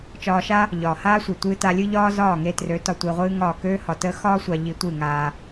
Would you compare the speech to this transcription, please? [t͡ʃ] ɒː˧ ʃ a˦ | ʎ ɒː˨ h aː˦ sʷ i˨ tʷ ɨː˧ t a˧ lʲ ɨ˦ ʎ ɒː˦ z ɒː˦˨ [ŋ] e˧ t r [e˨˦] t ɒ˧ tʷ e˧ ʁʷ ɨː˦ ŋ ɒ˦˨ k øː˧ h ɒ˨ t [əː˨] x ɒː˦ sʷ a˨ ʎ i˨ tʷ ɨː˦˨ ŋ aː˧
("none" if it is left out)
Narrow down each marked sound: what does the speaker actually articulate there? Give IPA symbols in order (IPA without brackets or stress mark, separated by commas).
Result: t͡ʃ, ŋ, ø˨˦, əː˧